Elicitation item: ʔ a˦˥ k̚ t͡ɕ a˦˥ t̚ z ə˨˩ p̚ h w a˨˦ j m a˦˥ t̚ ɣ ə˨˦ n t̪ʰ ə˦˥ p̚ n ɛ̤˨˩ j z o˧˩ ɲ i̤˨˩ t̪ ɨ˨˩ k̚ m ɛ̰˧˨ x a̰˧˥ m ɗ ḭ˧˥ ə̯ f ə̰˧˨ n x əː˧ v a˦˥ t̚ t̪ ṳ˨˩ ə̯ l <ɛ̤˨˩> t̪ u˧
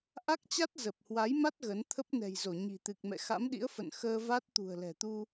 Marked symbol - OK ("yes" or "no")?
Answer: yes